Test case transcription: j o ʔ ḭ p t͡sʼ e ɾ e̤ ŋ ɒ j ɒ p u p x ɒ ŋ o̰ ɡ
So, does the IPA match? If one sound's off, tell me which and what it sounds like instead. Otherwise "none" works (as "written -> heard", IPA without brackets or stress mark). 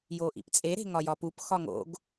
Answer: none